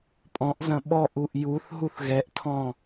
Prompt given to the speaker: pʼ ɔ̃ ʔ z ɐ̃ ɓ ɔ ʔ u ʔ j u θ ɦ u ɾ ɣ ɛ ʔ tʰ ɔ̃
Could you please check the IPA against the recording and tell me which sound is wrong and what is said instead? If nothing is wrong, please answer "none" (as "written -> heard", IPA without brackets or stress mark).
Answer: ɾ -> θ